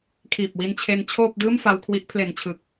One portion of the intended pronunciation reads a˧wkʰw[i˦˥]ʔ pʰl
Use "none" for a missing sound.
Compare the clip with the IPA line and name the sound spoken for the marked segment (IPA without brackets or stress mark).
i˦˥